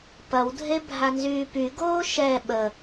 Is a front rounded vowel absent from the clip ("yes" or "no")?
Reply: no